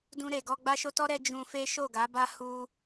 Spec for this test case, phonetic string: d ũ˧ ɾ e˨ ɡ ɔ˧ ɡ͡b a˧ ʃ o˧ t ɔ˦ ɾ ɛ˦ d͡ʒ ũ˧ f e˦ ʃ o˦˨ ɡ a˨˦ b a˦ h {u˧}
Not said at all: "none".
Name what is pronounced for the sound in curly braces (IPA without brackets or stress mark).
u˧